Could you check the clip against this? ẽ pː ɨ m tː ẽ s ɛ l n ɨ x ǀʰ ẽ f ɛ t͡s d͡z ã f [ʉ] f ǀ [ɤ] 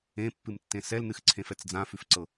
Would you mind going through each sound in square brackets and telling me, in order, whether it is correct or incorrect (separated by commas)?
correct, correct